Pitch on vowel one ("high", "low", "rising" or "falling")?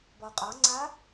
low